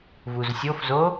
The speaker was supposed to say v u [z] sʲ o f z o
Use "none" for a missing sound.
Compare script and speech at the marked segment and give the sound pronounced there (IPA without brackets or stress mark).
z